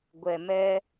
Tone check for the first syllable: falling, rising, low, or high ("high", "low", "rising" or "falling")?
low